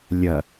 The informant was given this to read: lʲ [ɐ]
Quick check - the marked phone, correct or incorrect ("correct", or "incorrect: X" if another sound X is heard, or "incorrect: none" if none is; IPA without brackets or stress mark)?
correct